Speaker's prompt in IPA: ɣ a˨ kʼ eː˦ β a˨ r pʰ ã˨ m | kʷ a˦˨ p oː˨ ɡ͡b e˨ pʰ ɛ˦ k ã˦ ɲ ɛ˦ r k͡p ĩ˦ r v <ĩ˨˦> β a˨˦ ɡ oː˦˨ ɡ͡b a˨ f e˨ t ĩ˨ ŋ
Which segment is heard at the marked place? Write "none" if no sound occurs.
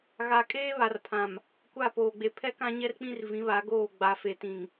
ĩ˨˦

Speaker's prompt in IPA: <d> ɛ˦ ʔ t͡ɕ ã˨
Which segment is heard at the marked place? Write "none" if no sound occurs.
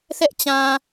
θ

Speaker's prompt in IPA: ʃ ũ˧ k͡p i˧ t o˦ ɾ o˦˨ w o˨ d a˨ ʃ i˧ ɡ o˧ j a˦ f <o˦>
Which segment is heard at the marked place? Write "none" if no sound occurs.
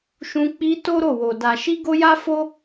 o˦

